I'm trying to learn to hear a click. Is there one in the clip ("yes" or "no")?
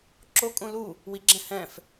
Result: yes